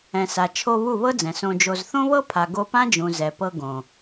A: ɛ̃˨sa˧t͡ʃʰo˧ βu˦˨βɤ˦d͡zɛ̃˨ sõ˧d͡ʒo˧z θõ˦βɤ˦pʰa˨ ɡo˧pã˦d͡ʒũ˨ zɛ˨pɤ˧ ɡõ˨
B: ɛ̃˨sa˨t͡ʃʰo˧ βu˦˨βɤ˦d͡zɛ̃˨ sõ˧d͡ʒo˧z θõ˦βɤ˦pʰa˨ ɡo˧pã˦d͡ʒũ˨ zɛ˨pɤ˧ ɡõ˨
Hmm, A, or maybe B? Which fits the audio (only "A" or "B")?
B